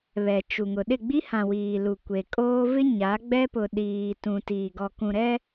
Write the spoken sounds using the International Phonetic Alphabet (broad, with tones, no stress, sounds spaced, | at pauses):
β ɛ˨ t͡ʃ u˨ ŋ ʊ˨ ɗ ɪ˦˨ ɡ͡b i˦ h ã˨ w iː˨ l u˨ kʷ e˨ kʼ oː˦ v ɪ˦ ɲ a˨˦ ɡ͡b ɛ˦ p ʊ˨ ɗ iː˨ t ũ˨ t i˨ ɡ ɔ˨ k ũ˨ ɾ ɛ˦